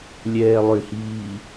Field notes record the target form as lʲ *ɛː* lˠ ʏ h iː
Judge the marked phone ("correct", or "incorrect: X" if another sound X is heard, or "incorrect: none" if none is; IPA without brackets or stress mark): correct